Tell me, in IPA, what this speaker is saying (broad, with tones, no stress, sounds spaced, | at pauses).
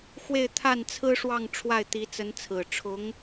x w e˥˧ ɪ̯ t̪ʰ a˥˩ n t͡sʰ ɹ̩˥ ʂ w ɑ˥˧ ŋ ʈ͡ʂʰ w a˥˩ ɪ̯ t̪ i˧˥ t͡s ə˧˥ n t͡sʰ ɹ̩˨˩ ʈ͡ʂʰ ʊ˧˥ ŋ